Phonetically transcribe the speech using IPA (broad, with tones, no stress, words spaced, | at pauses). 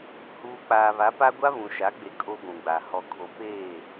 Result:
huː˨ k͡paː˨βa˨˦pa˦ ɡʷa˦βũ˨ʃa˨˦ɡ͡be˨ kʼo˦ɡʷũ˨ɡ͡ba˨ hɔ˨kʰo˨peː˦˨